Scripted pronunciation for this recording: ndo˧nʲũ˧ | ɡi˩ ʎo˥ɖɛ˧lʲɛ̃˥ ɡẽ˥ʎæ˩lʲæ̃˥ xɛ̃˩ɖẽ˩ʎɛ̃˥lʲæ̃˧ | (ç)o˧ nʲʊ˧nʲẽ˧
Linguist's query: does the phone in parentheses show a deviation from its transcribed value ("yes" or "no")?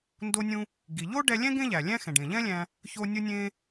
no